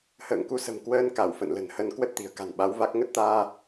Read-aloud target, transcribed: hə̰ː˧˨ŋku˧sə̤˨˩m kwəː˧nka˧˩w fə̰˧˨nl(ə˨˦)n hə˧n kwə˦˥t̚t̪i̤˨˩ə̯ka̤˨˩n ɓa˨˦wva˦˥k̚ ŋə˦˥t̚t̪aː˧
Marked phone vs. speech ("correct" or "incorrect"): incorrect